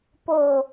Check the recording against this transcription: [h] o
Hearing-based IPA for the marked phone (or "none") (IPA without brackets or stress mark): p